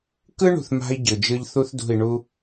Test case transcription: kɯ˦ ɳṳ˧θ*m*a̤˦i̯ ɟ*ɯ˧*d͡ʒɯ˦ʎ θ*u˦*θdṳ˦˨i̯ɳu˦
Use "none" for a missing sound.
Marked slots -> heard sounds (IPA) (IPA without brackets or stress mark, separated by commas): m, ɯ˨, u˦